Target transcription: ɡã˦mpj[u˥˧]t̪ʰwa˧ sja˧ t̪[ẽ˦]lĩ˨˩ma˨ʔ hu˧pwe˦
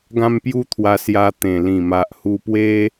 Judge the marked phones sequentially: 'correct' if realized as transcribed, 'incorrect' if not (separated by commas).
incorrect, incorrect